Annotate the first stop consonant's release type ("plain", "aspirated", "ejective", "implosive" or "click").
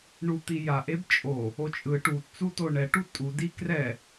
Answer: plain